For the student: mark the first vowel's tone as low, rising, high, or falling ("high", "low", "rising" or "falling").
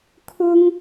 high